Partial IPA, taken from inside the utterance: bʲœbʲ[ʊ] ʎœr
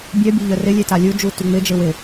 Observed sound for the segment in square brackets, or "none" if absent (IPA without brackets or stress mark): ʊ